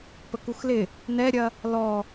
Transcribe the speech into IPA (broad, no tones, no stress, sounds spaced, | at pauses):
p ə k u x l ɪ | n ɛ ɾʲ ɐ | l ɔ